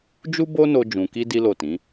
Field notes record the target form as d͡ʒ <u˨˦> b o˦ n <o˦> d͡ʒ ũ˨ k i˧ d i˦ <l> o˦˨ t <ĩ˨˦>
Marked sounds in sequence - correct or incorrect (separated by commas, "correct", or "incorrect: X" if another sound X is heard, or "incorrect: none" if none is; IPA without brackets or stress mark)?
incorrect: u˦, incorrect: o˧, correct, correct